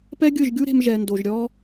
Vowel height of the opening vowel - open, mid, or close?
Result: mid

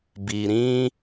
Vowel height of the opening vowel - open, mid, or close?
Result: close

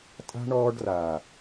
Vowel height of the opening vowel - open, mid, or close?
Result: open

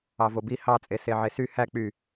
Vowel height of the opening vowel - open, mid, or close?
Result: open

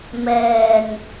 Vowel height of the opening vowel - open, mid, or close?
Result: mid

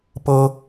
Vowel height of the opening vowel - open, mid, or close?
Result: mid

